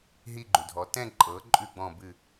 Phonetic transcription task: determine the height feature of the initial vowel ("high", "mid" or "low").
high